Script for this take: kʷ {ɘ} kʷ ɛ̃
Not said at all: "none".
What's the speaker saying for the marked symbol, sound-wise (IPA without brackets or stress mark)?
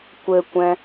ɘ